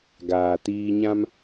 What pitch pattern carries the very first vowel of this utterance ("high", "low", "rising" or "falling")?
low